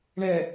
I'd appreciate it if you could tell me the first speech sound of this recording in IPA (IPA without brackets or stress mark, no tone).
ɳ